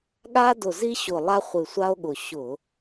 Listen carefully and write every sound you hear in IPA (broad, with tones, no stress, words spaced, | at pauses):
ɠa˦dʊ˨˩zi˦ɕʊ˨˩ lˠa˦χʷɨ˨˩sʷa˦o̯ɠʊ˨˩ ɕʊ˧˩˧